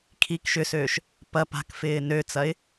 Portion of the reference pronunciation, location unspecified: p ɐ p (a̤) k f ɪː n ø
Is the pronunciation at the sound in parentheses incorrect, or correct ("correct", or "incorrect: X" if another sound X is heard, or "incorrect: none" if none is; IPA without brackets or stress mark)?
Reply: correct